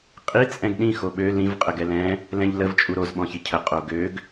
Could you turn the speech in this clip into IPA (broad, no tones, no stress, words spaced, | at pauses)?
qʼi t͡sʼɛ̃ɡɗĩ xoɓø lĩv qʼəɡɛlɛ̃ | lɛ̃ʎləv t͡ʃʼuɾoz ɓɔ̃çicʰə qʼoɡøɡ